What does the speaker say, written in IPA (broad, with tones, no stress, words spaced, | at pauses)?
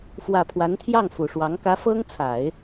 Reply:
fwä˨˩ pʰwa˧˥nt̪ʰjɑ˥˩ŋ fu˨˩ʂwɑ˧˥ŋ kä˧˥fɤ˥ŋ t͡sʰa˨˩˦ɪ̯